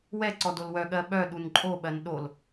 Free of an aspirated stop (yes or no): yes